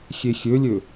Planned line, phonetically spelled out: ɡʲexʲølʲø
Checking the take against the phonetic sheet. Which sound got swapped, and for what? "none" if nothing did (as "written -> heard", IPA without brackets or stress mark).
ɡʲ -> xʲ